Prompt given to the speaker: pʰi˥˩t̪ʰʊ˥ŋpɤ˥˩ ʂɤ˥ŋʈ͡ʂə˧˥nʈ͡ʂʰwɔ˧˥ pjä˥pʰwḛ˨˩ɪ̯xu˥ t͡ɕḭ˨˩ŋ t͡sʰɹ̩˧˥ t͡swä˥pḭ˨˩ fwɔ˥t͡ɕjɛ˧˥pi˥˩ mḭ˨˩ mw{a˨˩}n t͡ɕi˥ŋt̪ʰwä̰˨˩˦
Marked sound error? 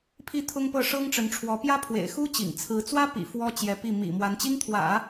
yes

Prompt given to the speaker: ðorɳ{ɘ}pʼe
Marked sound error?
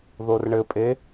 no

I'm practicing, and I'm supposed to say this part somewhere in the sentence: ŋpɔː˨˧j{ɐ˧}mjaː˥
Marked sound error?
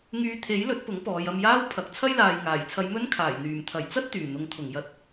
no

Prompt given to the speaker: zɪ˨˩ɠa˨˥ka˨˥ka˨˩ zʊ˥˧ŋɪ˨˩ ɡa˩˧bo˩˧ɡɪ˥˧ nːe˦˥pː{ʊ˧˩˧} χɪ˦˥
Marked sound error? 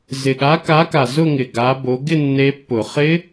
no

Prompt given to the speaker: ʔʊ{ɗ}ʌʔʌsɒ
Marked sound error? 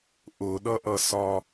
no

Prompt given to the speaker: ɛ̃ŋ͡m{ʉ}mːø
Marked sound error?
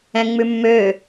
no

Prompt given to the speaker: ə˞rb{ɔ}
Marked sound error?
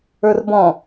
yes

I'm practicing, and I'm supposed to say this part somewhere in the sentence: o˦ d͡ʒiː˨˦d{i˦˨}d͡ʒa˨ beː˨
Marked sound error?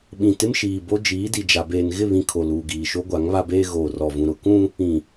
yes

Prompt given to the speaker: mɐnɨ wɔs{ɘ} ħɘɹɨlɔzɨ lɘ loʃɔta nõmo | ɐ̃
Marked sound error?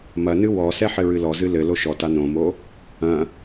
yes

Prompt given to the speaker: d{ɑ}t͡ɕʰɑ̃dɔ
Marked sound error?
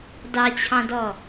no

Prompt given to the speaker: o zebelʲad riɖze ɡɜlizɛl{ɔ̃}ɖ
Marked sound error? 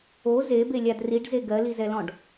no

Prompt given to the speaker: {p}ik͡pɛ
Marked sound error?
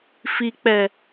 yes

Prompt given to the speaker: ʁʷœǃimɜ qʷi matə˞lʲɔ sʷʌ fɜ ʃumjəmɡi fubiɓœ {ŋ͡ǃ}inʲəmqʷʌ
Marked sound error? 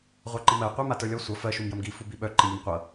yes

